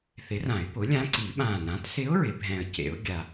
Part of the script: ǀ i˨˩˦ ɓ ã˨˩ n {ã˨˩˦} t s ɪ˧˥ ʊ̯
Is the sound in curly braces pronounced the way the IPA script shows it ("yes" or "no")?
no